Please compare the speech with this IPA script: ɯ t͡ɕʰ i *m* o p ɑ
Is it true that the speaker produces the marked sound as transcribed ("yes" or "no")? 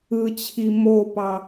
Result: yes